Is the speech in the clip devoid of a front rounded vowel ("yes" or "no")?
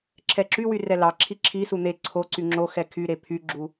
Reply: no